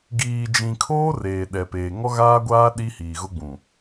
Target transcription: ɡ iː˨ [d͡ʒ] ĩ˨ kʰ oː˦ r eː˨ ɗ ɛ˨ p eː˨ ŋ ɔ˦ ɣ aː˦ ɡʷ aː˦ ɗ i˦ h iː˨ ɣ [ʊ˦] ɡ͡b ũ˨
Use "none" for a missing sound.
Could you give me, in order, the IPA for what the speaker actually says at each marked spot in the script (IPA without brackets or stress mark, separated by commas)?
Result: d͡ʒ, ʊ˦